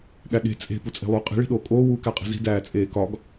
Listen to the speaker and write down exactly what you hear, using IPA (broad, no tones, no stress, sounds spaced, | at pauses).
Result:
ɠ æ ɠ e̤ t͡sʼ e̤ p u t͡sʼ e̤ lˠ uː qʼ i̤ ɭ i̤ ɗ oː kʼ oː w uː k æ qʼ e̤ z i̤ d æː t͡sʼ eː k ɒ ɡ